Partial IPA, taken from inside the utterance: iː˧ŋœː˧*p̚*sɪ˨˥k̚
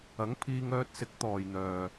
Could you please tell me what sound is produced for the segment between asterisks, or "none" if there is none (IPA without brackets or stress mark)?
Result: t̚